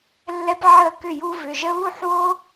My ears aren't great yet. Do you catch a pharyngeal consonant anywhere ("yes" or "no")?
yes